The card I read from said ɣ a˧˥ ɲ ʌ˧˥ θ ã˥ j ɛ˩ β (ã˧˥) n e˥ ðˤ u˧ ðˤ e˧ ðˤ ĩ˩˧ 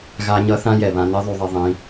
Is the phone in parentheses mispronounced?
yes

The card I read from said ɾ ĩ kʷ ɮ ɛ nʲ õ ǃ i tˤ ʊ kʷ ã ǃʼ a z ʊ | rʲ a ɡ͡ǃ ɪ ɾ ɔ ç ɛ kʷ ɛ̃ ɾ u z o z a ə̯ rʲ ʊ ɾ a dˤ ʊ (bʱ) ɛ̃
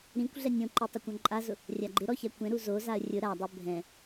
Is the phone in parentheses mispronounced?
no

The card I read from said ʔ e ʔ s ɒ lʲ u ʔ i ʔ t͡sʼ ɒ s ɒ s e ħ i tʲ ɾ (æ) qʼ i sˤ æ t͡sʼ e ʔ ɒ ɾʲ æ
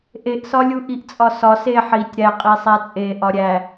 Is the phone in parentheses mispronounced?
no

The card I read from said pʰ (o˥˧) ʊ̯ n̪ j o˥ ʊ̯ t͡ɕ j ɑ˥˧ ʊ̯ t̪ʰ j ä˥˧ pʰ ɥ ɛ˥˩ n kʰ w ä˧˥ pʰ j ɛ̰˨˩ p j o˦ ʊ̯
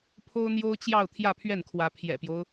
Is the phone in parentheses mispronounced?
yes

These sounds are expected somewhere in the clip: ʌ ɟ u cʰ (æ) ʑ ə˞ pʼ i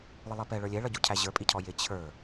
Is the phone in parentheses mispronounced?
no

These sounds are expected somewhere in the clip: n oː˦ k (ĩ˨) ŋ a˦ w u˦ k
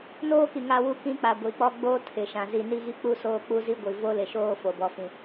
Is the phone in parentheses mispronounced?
yes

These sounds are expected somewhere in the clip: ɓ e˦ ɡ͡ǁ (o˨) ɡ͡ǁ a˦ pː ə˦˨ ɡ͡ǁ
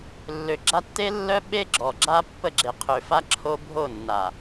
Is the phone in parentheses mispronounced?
yes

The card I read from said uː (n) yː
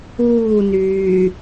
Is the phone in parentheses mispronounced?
no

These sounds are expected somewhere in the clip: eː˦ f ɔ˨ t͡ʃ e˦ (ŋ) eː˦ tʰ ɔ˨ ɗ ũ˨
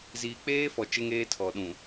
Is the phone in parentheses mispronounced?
no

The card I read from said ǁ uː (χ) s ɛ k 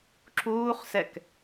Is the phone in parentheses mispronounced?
no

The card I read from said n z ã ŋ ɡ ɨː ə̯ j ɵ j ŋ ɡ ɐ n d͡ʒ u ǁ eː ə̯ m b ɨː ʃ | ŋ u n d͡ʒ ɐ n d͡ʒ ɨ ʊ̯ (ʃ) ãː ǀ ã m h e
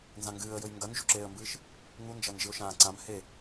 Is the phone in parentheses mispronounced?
no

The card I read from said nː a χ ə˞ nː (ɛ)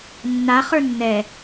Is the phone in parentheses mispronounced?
no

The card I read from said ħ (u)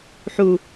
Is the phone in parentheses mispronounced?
no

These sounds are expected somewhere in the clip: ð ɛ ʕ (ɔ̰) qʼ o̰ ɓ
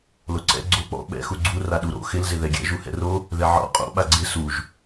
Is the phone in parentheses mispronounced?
no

